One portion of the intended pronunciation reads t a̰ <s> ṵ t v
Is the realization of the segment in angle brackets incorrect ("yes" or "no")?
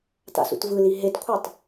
no